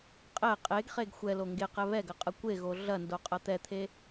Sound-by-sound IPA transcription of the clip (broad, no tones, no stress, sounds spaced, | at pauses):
qʼ ɛ qʼ e ɡ χ e ɡ xʷ ɛ l o ŋ ɡ e q ɛ β ɛ ɡ ɐ qʼ ɐ kʷ e ɣ o ɮ ɐ n d o qʼ ɐ t̪ ɛ t̪ʰ e